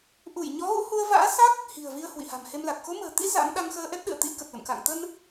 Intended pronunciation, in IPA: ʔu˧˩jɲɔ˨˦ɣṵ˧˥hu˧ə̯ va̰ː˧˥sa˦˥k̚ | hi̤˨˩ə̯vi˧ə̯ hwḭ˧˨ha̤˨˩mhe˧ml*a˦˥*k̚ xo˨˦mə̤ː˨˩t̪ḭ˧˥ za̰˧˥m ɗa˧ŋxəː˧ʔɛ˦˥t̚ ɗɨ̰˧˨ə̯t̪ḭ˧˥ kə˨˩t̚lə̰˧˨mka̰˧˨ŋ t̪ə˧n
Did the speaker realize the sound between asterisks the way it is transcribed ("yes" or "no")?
no